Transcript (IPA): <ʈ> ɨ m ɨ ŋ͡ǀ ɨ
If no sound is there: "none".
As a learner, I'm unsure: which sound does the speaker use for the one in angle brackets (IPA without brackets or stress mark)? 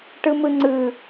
ʈ